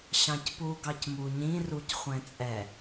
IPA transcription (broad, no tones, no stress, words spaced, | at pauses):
ɕɑ̃cpu ɡɑcmuɲĩ rucχʷɛ̃t͡sʼɛ